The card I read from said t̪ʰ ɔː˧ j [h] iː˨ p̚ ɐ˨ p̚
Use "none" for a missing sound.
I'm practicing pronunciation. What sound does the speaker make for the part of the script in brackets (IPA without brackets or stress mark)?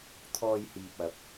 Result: h